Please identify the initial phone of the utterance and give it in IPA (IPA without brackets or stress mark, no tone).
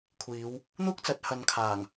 kʷʰ